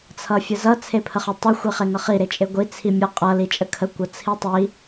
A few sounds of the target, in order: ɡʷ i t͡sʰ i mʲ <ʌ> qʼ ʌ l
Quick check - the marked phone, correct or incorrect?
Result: correct